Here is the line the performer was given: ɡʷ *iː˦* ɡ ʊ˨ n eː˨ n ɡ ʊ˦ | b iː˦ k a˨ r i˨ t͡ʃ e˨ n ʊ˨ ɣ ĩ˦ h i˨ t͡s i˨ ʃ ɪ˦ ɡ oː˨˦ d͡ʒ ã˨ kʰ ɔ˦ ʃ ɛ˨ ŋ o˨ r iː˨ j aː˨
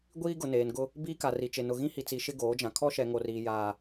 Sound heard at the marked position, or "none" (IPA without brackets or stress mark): iː˦